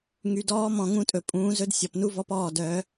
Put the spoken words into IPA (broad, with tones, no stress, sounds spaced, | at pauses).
ŋ y˨ d ɔː˦ m ɔ̃˨ ŋ ũ˦ tʼ ɵ˨ pʼ ũː˨˦ z ɵ˦ d sʲ ɔ˨ p n u˦ v ɔ˦ p ɔː˦˨ d œ˨˦